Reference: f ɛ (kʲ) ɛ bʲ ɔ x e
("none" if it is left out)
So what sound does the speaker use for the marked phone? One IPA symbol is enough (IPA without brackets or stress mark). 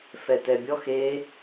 t